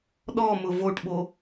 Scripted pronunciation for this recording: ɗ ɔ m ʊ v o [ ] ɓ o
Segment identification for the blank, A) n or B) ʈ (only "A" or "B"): B